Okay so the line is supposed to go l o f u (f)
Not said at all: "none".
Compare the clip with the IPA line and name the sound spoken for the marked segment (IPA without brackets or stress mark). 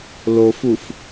f